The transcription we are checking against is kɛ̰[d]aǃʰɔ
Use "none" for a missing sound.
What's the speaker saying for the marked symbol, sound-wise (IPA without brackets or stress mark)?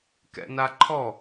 n